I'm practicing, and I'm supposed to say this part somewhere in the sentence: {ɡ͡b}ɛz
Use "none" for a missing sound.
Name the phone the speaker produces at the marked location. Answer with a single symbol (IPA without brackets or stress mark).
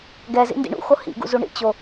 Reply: ɡ